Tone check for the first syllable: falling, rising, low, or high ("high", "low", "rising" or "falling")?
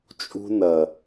high